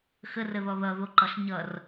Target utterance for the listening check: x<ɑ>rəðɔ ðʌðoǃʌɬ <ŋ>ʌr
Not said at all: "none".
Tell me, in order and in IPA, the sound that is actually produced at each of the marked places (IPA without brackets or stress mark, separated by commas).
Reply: ə, ɲ